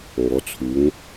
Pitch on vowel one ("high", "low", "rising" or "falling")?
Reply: rising